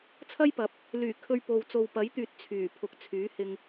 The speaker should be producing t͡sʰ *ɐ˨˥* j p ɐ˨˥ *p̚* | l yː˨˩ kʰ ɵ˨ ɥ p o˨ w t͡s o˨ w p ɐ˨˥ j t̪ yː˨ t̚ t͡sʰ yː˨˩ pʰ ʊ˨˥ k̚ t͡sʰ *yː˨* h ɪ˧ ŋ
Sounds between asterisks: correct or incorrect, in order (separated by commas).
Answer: incorrect, correct, incorrect